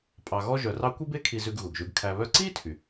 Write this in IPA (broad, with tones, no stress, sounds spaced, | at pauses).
pʼ ɑ˧ ɣ ɔ˥ ʒ œ˧ r ɑ˥ kʷ i˥ b e˥ kʰ i˧ z ʉ˧ ɡ ɣ u˩ ɡ ʒ ʉ˧ ɡ kʰ æ˧ β œ˥ ǀ iː˥ tʰ y˩